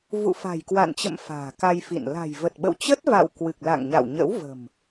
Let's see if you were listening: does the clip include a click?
no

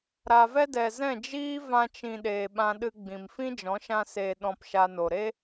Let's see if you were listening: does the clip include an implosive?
yes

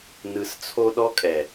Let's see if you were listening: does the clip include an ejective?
yes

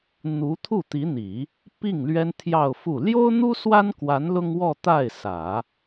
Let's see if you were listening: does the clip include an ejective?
no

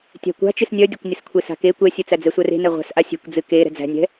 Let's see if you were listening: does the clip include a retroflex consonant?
no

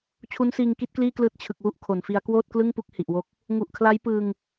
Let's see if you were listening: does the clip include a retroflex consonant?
no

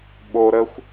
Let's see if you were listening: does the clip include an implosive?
yes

